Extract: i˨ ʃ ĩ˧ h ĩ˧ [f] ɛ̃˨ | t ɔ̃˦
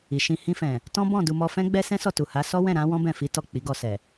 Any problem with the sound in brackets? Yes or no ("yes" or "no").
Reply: no